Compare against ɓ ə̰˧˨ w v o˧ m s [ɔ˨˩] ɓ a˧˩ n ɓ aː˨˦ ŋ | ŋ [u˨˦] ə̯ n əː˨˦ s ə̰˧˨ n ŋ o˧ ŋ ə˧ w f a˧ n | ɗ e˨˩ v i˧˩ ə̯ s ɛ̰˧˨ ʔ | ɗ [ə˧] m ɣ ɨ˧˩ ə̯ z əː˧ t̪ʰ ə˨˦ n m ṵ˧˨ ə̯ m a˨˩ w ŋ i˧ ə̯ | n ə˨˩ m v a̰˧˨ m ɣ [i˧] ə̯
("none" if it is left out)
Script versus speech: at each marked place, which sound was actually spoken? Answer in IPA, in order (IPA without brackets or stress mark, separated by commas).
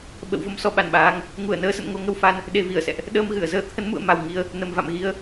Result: ɔ˧, u˧˩, əː˧, i˨˦